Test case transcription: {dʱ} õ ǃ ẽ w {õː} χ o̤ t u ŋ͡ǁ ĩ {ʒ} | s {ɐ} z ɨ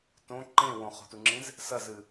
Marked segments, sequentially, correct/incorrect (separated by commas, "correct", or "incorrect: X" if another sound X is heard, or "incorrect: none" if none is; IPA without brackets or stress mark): incorrect: t, incorrect: õ, incorrect: z, correct